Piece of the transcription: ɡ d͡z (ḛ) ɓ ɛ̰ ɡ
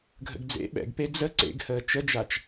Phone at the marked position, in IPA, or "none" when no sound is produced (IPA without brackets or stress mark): ḛ